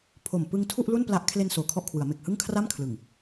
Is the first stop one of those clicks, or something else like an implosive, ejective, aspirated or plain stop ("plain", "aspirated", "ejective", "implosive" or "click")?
aspirated